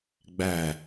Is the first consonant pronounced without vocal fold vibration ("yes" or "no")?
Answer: no